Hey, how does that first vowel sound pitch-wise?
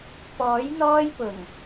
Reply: rising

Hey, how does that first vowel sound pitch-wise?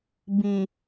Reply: low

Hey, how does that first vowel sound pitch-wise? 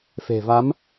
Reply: low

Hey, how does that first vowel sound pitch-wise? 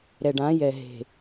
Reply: low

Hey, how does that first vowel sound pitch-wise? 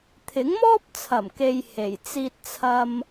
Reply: rising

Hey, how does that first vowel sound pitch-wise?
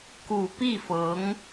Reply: low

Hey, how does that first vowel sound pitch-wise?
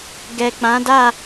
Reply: low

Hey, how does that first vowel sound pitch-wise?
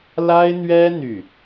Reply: high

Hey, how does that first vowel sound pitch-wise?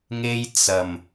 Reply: high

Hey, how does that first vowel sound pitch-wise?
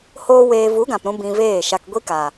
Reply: high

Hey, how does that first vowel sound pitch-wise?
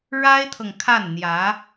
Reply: high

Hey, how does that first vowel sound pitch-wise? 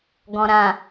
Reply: low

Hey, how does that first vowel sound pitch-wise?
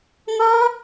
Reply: high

